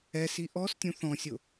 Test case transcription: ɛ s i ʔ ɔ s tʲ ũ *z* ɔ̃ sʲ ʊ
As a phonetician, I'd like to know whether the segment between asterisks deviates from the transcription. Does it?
yes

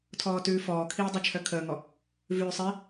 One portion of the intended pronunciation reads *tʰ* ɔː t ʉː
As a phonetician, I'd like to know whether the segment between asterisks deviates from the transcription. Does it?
no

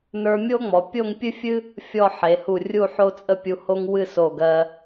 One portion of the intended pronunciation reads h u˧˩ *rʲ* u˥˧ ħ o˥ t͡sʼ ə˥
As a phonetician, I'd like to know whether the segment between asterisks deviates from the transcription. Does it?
no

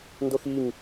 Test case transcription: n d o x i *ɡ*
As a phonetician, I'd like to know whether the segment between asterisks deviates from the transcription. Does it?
yes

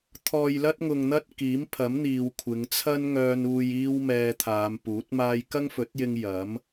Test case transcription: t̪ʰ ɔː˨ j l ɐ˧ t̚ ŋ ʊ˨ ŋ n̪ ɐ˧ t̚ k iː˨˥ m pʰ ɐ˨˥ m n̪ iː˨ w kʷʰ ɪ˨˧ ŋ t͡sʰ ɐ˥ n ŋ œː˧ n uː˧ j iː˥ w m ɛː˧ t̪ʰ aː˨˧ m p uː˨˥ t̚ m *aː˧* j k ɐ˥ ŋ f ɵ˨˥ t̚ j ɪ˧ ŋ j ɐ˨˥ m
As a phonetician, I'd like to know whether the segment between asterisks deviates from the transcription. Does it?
no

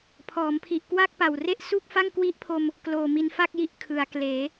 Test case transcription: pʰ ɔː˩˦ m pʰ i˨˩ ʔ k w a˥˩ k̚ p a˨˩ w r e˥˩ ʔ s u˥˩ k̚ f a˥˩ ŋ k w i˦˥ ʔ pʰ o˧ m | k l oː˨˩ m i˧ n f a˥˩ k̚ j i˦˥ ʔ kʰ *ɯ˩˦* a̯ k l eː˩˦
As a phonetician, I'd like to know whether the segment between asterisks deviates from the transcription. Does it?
no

